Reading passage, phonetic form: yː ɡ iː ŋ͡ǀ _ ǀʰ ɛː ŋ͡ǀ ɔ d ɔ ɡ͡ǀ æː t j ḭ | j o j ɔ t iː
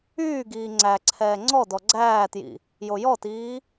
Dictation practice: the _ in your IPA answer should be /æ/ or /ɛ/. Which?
æ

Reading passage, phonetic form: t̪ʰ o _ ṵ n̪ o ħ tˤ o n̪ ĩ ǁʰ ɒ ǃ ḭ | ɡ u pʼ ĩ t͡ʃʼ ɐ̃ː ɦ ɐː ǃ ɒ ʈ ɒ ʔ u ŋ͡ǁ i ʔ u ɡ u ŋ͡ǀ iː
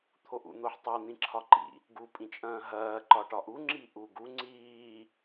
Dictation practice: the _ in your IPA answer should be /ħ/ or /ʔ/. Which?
ʔ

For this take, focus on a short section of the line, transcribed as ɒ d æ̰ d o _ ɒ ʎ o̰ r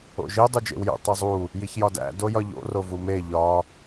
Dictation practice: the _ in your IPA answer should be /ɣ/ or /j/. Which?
j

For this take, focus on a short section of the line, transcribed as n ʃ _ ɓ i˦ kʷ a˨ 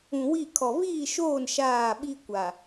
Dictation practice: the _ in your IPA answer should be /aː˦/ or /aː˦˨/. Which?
aː˦˨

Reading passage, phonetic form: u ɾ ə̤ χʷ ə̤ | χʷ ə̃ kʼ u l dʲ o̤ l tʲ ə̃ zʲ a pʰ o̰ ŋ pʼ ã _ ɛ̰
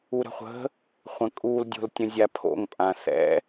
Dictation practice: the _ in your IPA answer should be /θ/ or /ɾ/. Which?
θ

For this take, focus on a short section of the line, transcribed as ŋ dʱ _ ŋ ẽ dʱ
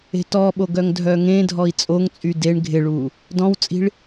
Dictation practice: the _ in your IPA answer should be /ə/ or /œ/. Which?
œ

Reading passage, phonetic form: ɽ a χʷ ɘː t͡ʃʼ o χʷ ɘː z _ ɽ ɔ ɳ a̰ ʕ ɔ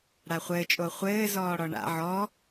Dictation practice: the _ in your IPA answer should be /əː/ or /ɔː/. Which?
ɔː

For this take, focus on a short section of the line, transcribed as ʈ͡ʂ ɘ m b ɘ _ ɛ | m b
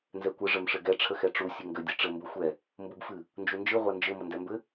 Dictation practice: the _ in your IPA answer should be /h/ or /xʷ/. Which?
xʷ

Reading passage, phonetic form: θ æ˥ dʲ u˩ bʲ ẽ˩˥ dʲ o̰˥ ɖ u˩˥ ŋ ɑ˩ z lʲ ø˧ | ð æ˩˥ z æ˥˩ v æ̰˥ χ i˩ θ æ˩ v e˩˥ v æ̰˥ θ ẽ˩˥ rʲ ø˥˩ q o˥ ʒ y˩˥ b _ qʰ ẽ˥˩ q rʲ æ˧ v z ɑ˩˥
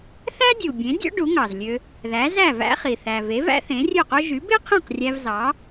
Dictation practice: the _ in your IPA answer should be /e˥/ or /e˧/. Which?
e˥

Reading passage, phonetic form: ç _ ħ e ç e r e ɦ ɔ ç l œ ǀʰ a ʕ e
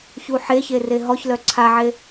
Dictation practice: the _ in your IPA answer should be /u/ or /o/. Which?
u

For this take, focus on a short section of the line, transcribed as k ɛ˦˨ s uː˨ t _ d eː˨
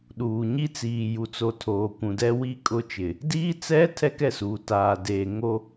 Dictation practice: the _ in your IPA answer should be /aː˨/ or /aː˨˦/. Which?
aː˨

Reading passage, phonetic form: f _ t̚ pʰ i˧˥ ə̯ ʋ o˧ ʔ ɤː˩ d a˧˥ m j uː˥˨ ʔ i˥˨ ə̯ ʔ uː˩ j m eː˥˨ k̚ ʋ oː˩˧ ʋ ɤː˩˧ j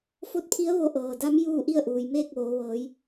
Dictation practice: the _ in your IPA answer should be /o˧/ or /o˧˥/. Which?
o˧˥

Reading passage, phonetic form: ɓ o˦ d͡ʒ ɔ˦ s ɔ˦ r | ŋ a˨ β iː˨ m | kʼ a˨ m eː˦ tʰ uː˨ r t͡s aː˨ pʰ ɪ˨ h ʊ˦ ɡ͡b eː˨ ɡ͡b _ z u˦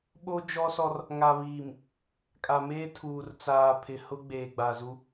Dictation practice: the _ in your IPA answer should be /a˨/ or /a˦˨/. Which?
a˨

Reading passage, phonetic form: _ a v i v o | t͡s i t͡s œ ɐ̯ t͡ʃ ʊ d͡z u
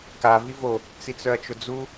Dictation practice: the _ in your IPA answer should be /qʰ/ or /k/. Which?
k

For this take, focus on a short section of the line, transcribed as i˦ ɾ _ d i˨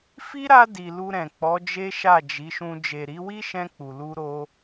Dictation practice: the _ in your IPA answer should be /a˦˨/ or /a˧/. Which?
a˧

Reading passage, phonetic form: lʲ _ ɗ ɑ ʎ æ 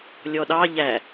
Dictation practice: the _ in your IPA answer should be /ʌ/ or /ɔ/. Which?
ɔ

